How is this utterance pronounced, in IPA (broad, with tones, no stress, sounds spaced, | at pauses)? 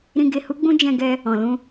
ɾ ĩ˧ ɡ e˧ h u˦ ɡ͡b ũ˦ d͡ʒ ɛ̃˧ ɡ ɛ˧ | ɔ̃˨ l ũ˧